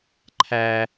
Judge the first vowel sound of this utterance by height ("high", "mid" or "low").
low